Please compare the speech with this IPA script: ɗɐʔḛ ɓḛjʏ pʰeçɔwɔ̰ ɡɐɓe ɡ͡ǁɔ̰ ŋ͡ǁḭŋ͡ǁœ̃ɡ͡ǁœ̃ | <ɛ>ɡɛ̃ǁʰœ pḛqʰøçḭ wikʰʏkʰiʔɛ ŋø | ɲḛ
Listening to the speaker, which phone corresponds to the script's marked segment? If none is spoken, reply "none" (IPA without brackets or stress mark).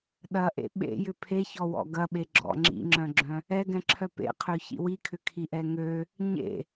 ɛ